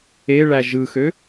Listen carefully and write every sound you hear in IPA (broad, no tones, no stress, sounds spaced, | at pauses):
e ɭ æ ʒ ɯ x ø